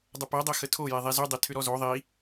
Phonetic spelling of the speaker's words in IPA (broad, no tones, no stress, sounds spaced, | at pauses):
dˤ ə p ɛ dˤ ɛ x ə tʰ o j e ðˤ e z y dˤ e tʰ ʏ ɾ ɔ z o ðˤ i